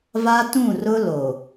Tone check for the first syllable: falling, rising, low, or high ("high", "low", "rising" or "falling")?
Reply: high